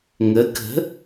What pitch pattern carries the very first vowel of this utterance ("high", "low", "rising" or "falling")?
rising